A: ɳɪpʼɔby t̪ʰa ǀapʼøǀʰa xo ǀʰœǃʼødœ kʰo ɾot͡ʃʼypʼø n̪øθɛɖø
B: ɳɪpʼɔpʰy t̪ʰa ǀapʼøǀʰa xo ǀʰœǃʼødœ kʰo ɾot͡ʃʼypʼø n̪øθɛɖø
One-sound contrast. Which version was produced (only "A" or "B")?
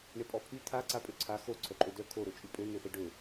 B